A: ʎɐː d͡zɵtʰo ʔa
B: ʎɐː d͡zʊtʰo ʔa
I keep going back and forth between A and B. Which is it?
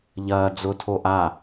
B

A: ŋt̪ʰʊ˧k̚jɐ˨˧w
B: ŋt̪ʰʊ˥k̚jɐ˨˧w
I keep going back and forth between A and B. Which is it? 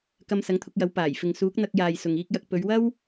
A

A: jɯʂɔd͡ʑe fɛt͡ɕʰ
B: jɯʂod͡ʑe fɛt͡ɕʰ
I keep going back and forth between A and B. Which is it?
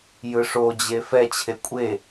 B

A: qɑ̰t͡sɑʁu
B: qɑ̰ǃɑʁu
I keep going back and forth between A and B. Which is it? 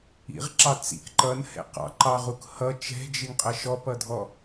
B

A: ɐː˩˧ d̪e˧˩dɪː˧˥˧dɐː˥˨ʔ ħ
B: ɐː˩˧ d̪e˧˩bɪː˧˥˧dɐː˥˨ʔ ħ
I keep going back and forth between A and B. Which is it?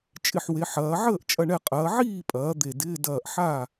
A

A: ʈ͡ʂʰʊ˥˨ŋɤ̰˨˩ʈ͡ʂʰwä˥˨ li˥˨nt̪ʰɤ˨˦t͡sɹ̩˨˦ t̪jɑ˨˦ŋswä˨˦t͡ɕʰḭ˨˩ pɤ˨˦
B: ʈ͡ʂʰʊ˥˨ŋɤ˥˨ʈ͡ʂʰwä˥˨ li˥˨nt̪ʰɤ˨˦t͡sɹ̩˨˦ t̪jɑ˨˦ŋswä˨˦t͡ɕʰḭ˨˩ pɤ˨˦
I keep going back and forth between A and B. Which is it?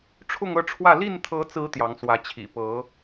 B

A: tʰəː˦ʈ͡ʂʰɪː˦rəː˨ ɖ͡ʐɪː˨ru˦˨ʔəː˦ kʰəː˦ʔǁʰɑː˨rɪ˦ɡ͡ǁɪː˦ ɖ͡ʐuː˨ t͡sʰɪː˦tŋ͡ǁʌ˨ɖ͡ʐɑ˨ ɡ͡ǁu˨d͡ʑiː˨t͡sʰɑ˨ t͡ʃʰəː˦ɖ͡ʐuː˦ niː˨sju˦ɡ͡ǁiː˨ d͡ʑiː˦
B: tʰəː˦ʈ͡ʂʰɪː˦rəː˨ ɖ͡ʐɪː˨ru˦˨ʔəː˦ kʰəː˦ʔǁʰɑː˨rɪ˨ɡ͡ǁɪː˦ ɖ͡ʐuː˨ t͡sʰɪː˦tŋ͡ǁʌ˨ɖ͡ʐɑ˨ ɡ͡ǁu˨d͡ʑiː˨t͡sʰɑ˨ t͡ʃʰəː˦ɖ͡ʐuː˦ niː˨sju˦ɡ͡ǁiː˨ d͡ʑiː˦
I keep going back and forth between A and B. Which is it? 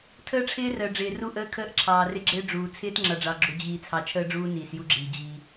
A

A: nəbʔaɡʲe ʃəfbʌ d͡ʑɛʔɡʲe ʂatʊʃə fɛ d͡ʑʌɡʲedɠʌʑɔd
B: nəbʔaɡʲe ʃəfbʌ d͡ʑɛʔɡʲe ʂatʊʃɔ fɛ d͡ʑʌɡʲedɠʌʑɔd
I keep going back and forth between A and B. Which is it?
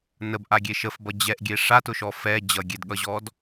B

